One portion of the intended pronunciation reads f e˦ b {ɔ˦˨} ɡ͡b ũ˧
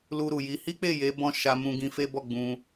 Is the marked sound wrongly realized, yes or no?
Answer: no